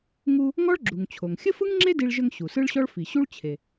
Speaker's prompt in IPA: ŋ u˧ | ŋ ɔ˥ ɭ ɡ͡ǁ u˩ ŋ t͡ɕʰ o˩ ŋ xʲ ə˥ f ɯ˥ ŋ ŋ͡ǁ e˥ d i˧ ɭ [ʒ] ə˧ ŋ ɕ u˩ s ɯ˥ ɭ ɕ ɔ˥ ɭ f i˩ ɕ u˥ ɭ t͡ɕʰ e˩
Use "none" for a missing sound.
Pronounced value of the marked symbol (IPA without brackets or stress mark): ʒ